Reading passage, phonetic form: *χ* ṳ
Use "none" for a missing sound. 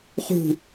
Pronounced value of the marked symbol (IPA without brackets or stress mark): χ